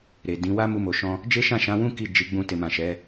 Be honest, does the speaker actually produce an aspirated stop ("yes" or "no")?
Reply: no